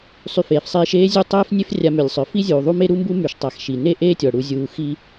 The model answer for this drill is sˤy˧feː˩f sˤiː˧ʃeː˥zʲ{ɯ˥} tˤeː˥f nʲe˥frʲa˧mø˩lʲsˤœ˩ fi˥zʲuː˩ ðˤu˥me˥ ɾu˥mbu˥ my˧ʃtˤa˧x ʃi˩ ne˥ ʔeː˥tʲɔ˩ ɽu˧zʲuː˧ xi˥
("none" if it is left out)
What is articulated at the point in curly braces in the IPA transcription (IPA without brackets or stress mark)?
u˥